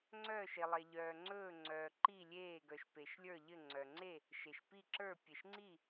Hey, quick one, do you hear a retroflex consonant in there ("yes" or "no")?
no